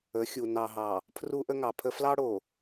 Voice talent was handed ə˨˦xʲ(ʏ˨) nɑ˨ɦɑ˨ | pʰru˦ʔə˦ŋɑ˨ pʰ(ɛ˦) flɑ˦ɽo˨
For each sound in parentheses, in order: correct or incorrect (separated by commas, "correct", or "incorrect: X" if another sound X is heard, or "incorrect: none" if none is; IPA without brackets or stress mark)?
incorrect: u˨, incorrect: ə˦